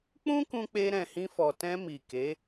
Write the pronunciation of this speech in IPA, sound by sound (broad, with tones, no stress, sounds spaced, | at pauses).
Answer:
k͡p ũ˦ k ũ˧ k͡p e˧ ɾ ɛ̃˨ h ĩ˧ f ɔ˨ t ɛ̃˧ m i˨ k e˨˦